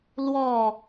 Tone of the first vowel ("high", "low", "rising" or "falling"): falling